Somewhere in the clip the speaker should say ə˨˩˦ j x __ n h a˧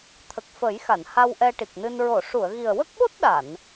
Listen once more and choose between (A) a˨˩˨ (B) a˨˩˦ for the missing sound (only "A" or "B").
A